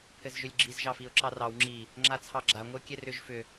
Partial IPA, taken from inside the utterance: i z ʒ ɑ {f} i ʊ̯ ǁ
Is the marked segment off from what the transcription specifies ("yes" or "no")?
no